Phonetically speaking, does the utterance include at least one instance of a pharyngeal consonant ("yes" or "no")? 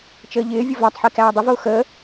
yes